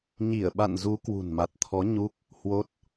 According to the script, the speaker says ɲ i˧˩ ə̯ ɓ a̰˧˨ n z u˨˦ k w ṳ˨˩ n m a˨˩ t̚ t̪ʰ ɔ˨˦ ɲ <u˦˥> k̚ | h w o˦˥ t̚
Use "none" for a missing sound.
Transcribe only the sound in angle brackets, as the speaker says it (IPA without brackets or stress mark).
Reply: u˦˥